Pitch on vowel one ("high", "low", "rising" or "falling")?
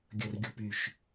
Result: low